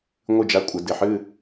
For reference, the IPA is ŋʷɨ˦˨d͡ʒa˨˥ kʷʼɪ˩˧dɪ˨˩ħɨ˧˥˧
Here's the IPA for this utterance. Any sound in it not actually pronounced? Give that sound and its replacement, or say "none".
none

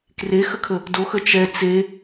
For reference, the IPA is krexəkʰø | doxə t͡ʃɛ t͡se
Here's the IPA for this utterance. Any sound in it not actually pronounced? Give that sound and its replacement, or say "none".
ø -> ə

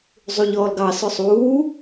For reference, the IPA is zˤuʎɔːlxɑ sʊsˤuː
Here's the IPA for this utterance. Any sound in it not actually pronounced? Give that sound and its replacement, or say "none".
x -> ɡ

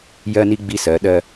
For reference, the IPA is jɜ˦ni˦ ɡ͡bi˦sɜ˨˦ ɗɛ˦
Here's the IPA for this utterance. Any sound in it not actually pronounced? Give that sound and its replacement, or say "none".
ɛ˦ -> ɜ˦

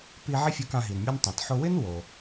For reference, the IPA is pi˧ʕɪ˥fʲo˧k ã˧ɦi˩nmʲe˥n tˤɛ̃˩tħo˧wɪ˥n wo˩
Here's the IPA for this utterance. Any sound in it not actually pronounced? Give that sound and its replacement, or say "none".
none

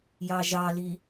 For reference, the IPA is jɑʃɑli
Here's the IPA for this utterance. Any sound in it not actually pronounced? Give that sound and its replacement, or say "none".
ʃ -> ʒ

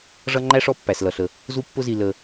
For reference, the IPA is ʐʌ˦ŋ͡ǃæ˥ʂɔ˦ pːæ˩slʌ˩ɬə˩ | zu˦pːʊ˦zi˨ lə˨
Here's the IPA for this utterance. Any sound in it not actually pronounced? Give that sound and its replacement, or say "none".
none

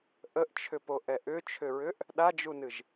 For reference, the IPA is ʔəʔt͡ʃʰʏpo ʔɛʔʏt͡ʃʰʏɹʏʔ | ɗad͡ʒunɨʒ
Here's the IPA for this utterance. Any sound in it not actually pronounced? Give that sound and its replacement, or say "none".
none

